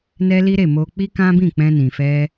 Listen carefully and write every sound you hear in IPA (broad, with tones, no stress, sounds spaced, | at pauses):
n ɛ˦ l i˦ ɾ e˦˨ m o˧ k͡p i˦ k ã˦ b ĩ˦˨ k͡p ɛ̃˧ n ĩ˨ f ɛ˧